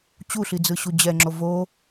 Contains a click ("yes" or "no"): yes